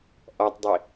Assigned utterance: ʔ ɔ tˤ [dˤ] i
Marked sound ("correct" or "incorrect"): correct